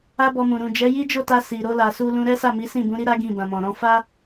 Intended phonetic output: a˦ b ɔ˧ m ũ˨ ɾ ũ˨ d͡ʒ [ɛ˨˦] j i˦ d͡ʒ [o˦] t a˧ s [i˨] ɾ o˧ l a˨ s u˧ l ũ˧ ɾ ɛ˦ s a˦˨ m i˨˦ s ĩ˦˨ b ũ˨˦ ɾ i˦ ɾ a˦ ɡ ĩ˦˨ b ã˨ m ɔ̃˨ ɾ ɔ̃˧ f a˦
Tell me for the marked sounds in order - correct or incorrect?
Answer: correct, incorrect: o˦˨, correct

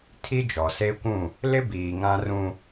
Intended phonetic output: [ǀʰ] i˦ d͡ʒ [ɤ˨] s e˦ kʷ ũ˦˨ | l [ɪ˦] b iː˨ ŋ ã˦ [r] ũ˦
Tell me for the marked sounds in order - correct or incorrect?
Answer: incorrect: tʰ, incorrect: ɔ˨, correct, correct

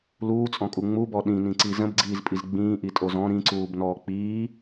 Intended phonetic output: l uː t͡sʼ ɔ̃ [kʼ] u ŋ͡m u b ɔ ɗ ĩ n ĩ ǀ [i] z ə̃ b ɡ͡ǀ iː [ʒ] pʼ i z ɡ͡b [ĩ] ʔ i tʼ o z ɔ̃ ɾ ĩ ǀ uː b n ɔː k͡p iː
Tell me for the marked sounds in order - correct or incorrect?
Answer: correct, correct, incorrect: z, incorrect: ĩː

